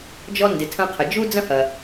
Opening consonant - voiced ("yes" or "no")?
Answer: yes